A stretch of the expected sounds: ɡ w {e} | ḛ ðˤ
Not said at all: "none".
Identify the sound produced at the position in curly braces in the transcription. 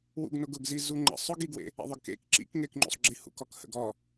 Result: ḛ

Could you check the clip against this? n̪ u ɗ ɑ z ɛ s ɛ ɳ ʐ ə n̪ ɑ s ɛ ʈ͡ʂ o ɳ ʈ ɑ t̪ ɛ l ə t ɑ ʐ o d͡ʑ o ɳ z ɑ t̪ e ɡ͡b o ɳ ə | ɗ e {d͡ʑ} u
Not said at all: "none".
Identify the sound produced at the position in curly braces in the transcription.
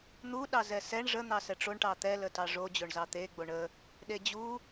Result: d͡ʑ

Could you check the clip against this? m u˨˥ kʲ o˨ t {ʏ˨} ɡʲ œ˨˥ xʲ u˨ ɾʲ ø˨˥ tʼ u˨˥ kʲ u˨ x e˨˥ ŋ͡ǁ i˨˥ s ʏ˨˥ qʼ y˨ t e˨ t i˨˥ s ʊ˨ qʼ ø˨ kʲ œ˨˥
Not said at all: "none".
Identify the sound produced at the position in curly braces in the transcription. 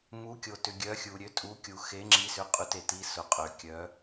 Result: ʏ˨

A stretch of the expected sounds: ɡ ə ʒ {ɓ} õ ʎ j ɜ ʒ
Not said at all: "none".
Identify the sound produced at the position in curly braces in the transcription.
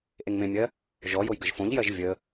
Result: f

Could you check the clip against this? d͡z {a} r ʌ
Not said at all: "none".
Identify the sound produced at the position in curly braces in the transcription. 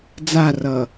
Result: a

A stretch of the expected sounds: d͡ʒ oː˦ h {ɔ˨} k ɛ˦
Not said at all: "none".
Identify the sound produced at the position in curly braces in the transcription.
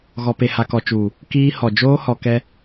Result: ɔ˨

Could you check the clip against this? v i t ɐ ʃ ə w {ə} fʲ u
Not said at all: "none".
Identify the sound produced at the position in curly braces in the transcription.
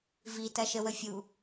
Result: ə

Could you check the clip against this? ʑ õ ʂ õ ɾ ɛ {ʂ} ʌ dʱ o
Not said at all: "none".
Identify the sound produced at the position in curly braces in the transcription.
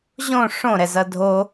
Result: z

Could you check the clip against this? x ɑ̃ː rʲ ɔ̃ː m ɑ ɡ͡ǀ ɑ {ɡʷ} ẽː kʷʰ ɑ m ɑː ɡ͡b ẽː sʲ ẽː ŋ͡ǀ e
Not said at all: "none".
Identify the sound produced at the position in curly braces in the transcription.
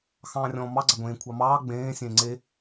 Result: ɡʷ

